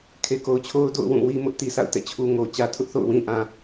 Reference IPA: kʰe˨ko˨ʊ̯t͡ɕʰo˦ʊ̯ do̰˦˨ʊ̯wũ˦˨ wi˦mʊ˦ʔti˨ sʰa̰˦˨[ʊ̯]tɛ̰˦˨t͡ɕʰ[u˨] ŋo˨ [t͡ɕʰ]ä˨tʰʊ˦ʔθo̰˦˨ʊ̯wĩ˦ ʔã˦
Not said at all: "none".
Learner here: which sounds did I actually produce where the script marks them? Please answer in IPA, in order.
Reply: ʊ̯, u˦, t͡ɕ

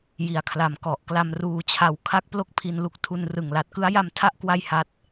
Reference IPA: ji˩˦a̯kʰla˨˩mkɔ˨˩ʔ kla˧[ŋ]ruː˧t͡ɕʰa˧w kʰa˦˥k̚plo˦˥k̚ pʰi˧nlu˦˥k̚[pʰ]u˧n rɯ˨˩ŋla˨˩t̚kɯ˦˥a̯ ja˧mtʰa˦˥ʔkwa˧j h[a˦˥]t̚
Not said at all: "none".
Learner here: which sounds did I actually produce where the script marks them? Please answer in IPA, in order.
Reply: m, tʰ, a˦˥

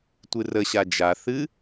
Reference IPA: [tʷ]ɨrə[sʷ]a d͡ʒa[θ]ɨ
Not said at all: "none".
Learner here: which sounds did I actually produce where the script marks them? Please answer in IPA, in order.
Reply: tʷ, ɕ, θ

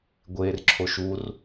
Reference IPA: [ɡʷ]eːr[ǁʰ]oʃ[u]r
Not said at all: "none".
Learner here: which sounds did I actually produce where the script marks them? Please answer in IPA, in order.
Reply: ɡʷ, ǁʰ, u

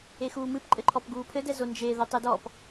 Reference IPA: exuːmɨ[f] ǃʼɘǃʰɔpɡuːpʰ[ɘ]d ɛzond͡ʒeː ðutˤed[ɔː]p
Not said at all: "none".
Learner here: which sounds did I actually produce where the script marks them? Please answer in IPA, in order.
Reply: p, ɘ, ɔː

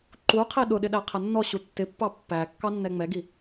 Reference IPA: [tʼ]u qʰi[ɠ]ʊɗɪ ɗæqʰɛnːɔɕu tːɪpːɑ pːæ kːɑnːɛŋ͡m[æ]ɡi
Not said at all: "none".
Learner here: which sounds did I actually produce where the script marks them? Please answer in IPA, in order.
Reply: ǃ, ɗ, ɛ

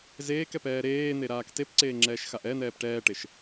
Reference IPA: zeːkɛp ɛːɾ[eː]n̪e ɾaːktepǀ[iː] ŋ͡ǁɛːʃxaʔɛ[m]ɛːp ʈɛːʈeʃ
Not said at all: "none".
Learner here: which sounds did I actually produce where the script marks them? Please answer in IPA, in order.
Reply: eː, eː, n̪

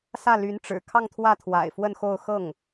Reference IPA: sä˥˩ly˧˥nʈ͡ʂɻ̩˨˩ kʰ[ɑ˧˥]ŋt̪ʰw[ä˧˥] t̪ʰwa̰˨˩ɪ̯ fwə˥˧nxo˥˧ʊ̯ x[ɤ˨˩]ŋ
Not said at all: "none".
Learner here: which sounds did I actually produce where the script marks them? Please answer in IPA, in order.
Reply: ɑ˥˧, ä˥˩, ɤ˥˩

